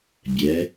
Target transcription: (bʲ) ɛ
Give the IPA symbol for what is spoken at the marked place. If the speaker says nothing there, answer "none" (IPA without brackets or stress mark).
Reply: bʲ